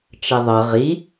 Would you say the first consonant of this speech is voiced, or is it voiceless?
voiceless